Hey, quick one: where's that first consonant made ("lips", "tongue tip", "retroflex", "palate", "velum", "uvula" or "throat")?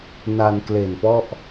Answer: tongue tip